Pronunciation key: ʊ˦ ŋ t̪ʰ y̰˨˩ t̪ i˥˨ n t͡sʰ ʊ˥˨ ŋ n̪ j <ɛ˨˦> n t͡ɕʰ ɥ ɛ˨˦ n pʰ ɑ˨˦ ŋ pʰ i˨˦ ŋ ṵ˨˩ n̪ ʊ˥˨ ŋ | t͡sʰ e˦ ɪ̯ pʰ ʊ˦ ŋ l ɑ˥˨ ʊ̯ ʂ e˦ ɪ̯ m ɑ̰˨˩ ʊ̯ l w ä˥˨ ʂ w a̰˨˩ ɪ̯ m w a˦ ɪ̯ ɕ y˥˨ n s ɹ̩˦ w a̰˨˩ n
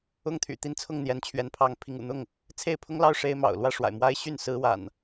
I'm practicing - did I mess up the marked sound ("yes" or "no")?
no